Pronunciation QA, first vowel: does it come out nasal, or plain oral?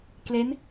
oral